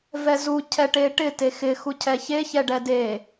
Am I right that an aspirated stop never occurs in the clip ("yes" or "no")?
no